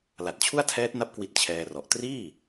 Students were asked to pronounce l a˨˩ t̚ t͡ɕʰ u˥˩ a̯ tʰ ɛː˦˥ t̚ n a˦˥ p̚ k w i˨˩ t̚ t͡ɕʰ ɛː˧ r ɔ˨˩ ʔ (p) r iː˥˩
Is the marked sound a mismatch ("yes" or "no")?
yes